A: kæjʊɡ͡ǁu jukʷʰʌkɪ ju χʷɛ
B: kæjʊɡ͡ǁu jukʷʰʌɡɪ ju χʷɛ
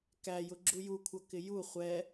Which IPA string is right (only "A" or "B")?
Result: A